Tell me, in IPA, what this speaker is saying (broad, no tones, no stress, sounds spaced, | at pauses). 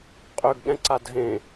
qʼ ø ɡ ɠ ɛ̃ ǀ a dʱ ẽ